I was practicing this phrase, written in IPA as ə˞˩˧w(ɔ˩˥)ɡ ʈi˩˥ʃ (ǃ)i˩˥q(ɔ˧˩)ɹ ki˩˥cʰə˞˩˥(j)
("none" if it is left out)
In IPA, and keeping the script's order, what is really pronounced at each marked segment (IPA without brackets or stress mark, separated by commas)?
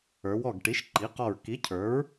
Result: ɔ˧˩, ǃ, ɔ˧˩, ɹ